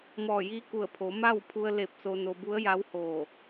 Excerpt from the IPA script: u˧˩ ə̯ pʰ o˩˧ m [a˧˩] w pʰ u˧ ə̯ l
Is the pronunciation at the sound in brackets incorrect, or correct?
incorrect